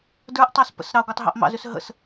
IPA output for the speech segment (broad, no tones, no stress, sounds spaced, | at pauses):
d ə˞ ʔ tˤ ɑ s p ə̰ s ɾ ɑ ɡʷ ə˞ tˤ ɦ ɑ̰ ʔ m ɑ̰ z ʏ s ɦ ə̰ s